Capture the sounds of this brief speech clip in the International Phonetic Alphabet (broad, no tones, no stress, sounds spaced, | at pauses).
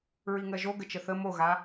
ɹ i ŋ ɜ ʒ o ɡ ə t͡ʃ ə θ ə m o ɣ a